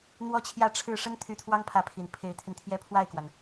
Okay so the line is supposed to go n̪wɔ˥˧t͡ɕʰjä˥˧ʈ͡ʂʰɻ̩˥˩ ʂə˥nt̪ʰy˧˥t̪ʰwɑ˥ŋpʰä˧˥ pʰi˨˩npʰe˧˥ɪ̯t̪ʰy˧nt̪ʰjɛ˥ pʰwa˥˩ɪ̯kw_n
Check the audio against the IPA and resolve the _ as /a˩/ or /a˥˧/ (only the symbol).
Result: a˩